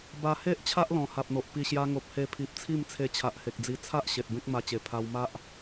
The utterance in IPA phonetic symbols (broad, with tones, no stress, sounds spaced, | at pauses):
b a˧ h e˦ ʔ t͡ɕʰ a˦ ʔ l ɔ̃˨˩ h a˨ p̚ n̪ o˨ ʔ p i˨˩ ɕ j a˧ ŋ o˨ p̚ h e˧ pʰ i˨ p̚ t͡sʰ i˥˧ m t͡sʰ e˧ t͡ɕʰ a˨ ʔ h e˨ k̚ d͡z i˧ t͡sʰ a˦ ʔ ɕ e˨ t̚ b ẽ˦ k̚ m a˧ t͡ɕ e˨˩ pʰ a˧ w m a˦ ʔ